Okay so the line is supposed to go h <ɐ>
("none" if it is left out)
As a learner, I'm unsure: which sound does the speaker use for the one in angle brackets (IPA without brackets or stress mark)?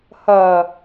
ɐ